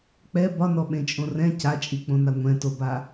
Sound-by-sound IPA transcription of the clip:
k͡p ɛ b ɒ n ɔ ɓ ẽ t͡ʃʼ õ r ɛ̃ c a t͡ʃʼ i k͡p õ n a ŋʷ ɛ̃ t o b a

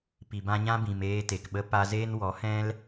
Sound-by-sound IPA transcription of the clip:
p i˨ b ã˧ ɲ ã˦ b ĩ˨ m eː˧ t e˨ k ɓ ə˧ p a˦ z eː˦ n w ɔ˨˦ h ɛ̃˦ l

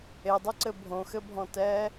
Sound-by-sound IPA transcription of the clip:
e dˤ ɘ ǀ ɘ bʱ õ x ɘ bʱ ɔ̃ t ɛː

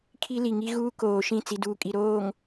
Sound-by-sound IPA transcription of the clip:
kʰ i˦ l i˨ ŋ i˦ ɣ uː˦ k oː˨ ʃ ĩ˦˨ t͡s i˨ d uː˨ kʼ i˨ ɾ oː˨ ŋ

